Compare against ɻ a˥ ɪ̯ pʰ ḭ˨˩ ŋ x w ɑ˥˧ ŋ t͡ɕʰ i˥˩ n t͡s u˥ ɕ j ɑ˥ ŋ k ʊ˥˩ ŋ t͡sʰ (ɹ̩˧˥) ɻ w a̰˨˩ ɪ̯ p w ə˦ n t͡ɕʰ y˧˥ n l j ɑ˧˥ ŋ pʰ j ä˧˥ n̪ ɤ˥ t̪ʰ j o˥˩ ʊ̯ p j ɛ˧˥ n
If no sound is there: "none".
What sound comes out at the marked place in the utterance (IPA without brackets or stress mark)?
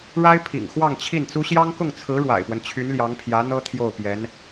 ɹ̩˧˥